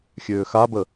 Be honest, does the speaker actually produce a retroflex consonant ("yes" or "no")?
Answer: no